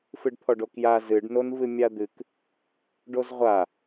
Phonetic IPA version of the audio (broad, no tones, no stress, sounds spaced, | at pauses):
f ɨ ɖ t̪ʰ ɔ ɖ o k j a z ɨ ɖ n o n v ɨ mʲ a d̪ ɨ k | ɖ o z ʁʷ a